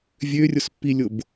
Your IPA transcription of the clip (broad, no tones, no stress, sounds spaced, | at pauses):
vʲ ø rʲ o s pː i lʲ o b